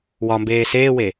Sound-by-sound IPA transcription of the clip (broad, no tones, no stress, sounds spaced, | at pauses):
w ɒ m b eː s eː w e